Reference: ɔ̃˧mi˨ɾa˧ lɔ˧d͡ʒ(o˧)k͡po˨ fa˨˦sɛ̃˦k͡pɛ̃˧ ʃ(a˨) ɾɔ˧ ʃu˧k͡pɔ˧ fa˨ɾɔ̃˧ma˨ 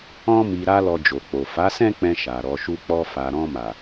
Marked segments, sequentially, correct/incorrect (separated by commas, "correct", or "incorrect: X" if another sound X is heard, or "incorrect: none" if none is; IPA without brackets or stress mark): incorrect: o˨, correct